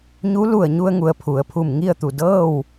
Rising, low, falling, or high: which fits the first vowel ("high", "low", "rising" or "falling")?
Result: rising